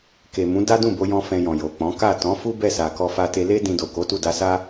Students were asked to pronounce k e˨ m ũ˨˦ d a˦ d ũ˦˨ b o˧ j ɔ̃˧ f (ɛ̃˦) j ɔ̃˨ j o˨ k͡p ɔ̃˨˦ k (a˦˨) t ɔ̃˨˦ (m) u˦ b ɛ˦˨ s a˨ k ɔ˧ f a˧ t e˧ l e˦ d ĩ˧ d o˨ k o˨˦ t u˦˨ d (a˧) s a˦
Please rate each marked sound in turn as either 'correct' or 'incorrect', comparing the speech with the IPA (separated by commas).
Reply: incorrect, correct, incorrect, correct